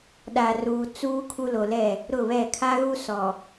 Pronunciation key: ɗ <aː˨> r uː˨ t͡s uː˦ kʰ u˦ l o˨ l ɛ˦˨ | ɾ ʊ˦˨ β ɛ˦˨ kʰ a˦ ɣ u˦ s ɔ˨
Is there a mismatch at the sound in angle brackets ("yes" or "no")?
yes